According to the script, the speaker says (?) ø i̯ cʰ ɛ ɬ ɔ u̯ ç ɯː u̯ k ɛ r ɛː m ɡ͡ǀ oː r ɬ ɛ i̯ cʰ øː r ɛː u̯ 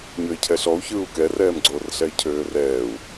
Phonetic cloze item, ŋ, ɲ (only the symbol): ɲ